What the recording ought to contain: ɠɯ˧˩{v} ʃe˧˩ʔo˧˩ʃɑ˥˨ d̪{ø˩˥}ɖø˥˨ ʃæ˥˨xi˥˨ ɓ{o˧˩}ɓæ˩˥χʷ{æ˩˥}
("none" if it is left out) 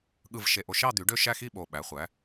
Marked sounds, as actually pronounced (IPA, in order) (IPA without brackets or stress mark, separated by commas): v, y˩˥, o˧˩, æ˩˥